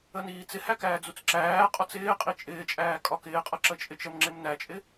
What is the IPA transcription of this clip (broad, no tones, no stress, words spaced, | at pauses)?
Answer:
əniːt͡sɪhæ kæːd͡zut͡sǁæːqʼɒt͡s ɪː qʼit͡ʃʼɪːt͡ʃʼæː kʼɒkɪːqʼʌ ǁət͡ʃʼɪt͡ʃəmŋ͡ǁɪm næt͡ʃʼɪ